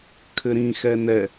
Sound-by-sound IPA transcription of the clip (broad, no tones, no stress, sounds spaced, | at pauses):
kʰ ɘ ɾ ĩ x ɛ n ɛ